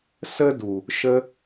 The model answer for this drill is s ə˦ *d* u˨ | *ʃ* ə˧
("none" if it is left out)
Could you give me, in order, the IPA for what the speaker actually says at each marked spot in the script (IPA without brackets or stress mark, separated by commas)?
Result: d, ʃ